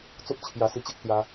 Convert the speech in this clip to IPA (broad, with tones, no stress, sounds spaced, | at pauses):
t͡s o˦ p̚ t͡ɕʰ j a˨˩ s i˧ t͡ɕ e˦ k̚ t͡s j a˧